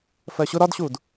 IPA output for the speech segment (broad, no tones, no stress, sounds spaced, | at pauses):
f ɜ ɕ ʊ ɾ ɒ d ɕ uː d